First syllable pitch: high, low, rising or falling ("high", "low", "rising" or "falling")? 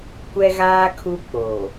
high